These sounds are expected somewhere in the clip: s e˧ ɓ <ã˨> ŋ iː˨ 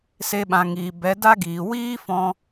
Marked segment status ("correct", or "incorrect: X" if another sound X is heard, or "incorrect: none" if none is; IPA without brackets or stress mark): correct